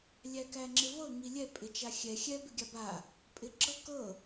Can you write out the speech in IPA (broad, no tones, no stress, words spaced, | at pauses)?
lʲækæŋ͡ǁɪvɤ ŋilʲɛ pʼɪt͡ʃaxʲɛ xʲɛ bɪɡʲaba | pʼɪɡ͡ǁɤ kɤ